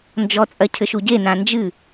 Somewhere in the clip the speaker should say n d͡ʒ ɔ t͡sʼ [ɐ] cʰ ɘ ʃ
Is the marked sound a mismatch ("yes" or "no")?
no